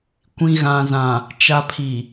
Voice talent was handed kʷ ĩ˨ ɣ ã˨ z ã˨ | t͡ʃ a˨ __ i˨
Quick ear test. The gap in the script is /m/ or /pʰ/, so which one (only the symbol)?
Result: pʰ